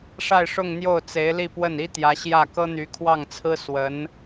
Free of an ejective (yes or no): yes